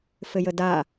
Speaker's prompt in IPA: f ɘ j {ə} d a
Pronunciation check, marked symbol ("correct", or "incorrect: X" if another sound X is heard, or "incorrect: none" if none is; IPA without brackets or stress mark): correct